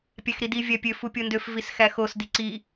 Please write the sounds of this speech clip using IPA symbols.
pʲ æ x ɾ i d i vʲ æ pʲ ø f u pʲ o n d ø f v i s x æ x o s d i ǀ i

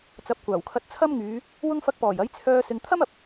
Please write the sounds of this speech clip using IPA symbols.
t͡s ɐ˨˥ p̚ kʷ aː˨˩ w kʰ ɐ˧ t̚ t͡sʰ ɐ˥ m ŋ yː˨˧ | w ʊ˧ ŋ f ɐ˨˥ k̚ p ɔː˨˩ j ɐ˨˥ j t͡sʰ œː˧ s ɪ˨ ŋ t̪ʰ ɐ˥ m ɐ˨ p̚

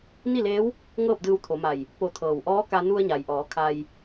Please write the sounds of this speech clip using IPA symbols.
n i˥˨ l eː˧˥ w | ŋ ɤː˥˨ p̚ d ɯː˧ w t̪ʰ o˩˧ m a˧˩ j | p o˧˩ t̪ʰ ɤː˩ w ʔ ɔː˧˥ k a˧ n u˧ ə̯ ɲ a˩ j ʔ ɔː˩˧ kʰ a˧ j

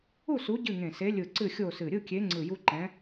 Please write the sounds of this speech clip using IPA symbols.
u˥˨ s u˨˥ ɟ ɨ˥˨ ŋ ẽ˧˩ s e˨˥ lʲ ɯ˧˩ ǀ ɨ˥˨ xʲ o˥˨ s ɨ˧˩ ɾʲ ɯ˥˨ kʲ e˨˥ ŋ͡ǀ ɯ˧˩ j u˦ ǃ ɛ̃˨˥

